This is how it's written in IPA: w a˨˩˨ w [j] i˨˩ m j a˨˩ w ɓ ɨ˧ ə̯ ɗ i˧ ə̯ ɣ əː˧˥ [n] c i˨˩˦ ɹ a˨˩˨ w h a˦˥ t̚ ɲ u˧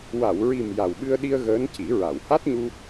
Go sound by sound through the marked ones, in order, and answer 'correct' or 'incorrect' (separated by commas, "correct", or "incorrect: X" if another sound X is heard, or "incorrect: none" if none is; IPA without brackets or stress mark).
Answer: incorrect: ɹ, correct